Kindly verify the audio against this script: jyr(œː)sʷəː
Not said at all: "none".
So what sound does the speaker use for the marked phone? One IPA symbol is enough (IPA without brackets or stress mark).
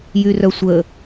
œ